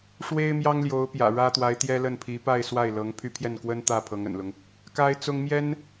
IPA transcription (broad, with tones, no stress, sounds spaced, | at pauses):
ʂ w e˥ ɪ̯ m j ɑ˥ ŋ l j o˧˥ ʊ̯ p j ä̰˨˩ ɻ ä˥ t̪ w a˧˥ ɪ̯ t̪ j ɛ˥ l ə˥˩ n pʰ i˧˥ p a˥˧ ɪ̯ s w a˥˩ ɪ̯ l ɤ˧˥ ŋ pʰ y˥˧ pʰ j ɛ˥˩ n k w ə˥ n t̪ ä˥˩ pʰ ɤ˧˥ ŋ ə̰˨˩ n l ʊ˦ ŋ | k a˥ ɪ̯ t͡s ʊ˥ ŋ m j ɛ˥ n